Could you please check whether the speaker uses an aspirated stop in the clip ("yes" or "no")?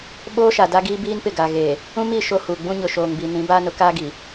no